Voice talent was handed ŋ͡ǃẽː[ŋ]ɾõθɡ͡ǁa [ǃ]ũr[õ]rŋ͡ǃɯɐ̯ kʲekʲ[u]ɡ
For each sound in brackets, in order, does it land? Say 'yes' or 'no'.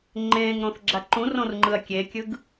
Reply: yes, yes, yes, no

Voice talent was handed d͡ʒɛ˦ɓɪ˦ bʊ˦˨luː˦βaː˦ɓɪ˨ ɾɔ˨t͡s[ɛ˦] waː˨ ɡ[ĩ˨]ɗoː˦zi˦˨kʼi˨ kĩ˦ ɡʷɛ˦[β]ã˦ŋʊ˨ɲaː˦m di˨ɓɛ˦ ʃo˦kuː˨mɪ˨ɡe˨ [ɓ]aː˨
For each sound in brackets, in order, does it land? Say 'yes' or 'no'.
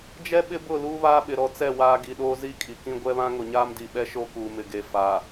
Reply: no, no, yes, no

